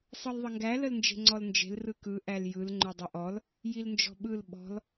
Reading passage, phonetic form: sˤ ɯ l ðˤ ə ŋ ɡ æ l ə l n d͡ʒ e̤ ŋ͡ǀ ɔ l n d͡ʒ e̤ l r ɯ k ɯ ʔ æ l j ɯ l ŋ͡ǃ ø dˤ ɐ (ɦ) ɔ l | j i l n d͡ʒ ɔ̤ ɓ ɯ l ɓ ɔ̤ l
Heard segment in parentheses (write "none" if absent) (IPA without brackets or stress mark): ʔ